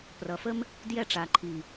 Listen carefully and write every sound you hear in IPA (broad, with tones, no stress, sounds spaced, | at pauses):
p r ʌ˨ f ə˦ m | d j ɛ˧ ʈ͡ʂ a˨ ǃʰ i˨